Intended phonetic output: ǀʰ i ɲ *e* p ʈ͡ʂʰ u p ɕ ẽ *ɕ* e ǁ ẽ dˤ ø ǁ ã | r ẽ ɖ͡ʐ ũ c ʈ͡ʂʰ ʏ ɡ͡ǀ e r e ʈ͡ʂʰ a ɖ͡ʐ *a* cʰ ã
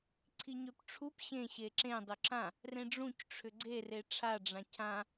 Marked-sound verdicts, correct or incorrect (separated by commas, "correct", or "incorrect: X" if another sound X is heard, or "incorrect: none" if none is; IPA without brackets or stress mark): incorrect: ø, correct, incorrect: ã